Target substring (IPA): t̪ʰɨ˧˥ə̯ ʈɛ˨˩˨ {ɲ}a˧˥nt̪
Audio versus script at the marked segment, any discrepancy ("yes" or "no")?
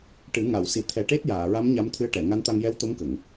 yes